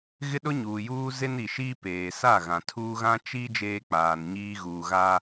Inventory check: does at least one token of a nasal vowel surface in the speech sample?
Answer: yes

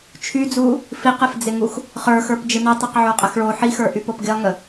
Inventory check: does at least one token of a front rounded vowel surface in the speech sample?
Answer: yes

